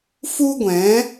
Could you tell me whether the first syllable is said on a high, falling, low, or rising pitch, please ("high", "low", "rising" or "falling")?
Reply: high